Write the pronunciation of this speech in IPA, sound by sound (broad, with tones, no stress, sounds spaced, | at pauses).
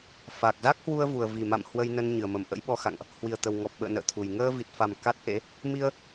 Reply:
f a˨˩ k̚ z a˦˥ k̚ h w u˧ ə̯ v u˨˩ ə̯ v i˨˩ m a̰˧˨ m h w ə˧ j n ə˧ n ɲ ɨ˨˩ ə̯ m ə˨˩ m ʔ ə̰˧˥ j ɓ ɔ˧ x a̰˧˨ ŋ ʔ | h w i˨˩ ə̯ t̪ ə˨˩ w ŋ ɔ˨˩ p̚ ɓ ə̰ː˧˨ n ə̰ː˧˨ t̪ʰ u˨˩ j ŋ əː˧ v i˨˩ t̚ f a˨˩ m k a˦˥ t̚ ʔ ḛ˧˥ | m i˧ ə̯